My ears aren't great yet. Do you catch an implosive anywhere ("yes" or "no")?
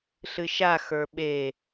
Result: yes